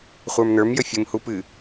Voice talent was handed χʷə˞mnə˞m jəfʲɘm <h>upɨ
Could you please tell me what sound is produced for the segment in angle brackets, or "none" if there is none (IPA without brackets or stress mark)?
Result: h